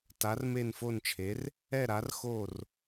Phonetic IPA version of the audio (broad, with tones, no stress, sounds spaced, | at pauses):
t a˧˥ r m e˥˧ n f o˥˧ n t͡ʃʰ e˧˥ r | ɛ˥˧ ɾ a˧˥ r x o˥˧ r